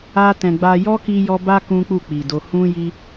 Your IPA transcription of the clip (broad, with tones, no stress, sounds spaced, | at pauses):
a˧ t ɛ̃˨ ɡ͡b a˧ j ɔ˦ k i˦ j ɔ˦ b a˦ k ũ˦ k͡p u˦˨ k͡p i˨ d o˧ h ũ˦ j i˦